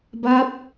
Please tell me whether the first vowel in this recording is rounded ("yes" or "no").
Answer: no